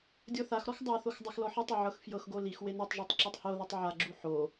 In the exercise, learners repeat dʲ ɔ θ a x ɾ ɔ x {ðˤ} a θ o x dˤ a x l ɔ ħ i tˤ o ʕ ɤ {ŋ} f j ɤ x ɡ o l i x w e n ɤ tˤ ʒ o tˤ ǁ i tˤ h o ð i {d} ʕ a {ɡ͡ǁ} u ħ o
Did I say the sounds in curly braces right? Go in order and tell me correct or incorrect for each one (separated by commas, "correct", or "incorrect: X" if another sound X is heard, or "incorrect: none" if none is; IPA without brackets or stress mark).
incorrect: dˤ, incorrect: x, incorrect: tˤ, correct